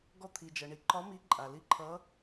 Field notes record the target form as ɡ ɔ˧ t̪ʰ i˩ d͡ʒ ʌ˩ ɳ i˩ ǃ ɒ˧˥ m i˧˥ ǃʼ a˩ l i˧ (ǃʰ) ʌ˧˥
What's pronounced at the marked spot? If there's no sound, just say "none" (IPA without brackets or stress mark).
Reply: ǃʰ